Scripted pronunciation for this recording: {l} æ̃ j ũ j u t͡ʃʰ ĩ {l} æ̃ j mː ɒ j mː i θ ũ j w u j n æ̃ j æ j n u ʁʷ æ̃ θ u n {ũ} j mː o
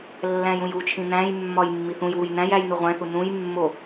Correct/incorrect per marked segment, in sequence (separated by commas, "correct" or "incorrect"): incorrect, incorrect, correct